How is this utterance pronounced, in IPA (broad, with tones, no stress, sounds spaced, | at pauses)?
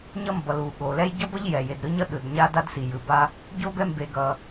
ɲ ʌ˥ m b ʌ˩ l u˩ ɠ o˩ l ɛ˥ j ɟ ʌ˥ b ʌ˥ ʎ j ɛ˩ j e˩ d ɾ ɯ˥ ɲ ʌ˥ ɗ ɯ˩ d ɲ a˥ d a˥ d s i˩ j ɯ˩ b a˥ | ɟ o˥ b ɛ˥ m b e˩ ɡ ʌ˩